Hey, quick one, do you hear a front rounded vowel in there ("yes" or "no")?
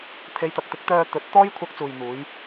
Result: yes